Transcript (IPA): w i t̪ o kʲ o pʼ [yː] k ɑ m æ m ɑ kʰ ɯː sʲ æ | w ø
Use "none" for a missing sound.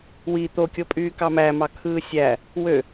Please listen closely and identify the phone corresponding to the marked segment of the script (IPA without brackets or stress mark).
yː